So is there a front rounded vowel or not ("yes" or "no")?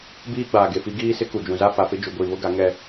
no